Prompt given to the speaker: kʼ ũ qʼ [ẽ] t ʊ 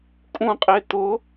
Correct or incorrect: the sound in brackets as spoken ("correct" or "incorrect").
incorrect